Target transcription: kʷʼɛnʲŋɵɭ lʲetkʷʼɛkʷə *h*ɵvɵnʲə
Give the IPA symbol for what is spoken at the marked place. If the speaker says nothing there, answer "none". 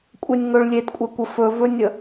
f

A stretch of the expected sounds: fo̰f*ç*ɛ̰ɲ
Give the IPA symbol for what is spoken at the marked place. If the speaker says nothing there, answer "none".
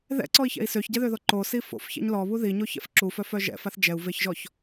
ç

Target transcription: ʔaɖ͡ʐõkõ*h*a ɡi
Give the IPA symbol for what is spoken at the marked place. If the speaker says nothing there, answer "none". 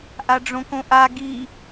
ʔ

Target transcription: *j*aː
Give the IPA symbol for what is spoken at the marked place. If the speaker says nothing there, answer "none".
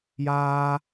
j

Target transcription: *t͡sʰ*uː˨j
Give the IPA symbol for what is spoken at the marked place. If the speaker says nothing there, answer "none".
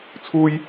t͡sʰ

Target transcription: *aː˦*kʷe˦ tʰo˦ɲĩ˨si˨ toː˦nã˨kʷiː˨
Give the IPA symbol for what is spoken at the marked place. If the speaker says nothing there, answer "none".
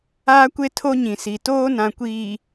aː˦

